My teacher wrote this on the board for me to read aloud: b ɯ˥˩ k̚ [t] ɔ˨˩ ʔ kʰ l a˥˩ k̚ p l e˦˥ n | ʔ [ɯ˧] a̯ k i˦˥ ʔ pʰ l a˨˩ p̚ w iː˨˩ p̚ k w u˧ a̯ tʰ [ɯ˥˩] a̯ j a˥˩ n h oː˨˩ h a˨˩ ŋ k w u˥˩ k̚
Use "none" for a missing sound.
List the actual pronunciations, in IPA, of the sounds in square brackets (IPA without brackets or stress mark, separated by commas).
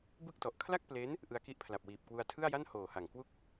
t, ɯ˧, ɯ˥˩